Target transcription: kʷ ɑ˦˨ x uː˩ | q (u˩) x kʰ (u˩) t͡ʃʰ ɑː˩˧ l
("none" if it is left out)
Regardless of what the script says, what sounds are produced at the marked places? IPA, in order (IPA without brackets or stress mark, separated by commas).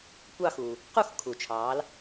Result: u˦˨, u˩